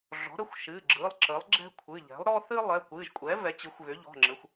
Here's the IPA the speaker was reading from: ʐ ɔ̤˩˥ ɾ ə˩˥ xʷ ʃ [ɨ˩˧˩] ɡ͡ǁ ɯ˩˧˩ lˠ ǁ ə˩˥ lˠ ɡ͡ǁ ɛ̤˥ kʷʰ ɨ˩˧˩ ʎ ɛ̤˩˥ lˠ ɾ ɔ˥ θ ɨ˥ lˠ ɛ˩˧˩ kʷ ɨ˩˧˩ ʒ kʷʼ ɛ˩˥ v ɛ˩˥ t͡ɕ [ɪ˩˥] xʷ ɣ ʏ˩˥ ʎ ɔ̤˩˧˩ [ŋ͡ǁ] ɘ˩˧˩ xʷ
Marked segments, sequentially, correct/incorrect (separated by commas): correct, incorrect, correct